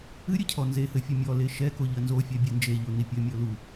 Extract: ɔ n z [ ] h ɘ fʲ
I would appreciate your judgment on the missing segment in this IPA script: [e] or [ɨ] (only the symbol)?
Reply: e